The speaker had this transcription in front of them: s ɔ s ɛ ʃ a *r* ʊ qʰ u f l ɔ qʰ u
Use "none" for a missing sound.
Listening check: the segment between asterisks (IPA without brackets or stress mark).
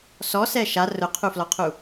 r